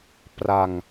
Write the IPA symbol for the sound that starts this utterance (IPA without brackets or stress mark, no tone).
p